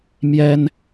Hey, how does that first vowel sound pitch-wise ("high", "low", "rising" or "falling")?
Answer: high